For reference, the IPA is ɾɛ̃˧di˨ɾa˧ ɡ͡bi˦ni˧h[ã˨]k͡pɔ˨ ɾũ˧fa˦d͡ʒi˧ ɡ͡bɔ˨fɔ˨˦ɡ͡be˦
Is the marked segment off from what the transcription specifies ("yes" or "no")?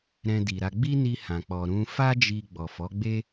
no